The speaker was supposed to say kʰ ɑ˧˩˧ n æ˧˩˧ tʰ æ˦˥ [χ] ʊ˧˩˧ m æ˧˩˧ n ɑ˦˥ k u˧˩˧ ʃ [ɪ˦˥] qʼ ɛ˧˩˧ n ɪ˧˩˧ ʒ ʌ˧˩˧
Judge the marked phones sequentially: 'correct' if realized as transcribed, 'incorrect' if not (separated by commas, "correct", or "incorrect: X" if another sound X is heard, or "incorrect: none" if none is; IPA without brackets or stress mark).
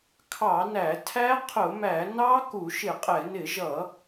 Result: incorrect: qʰ, incorrect: ɪ˧˩˧